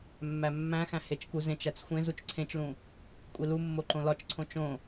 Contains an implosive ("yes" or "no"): no